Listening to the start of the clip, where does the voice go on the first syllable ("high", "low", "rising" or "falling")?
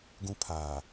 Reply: high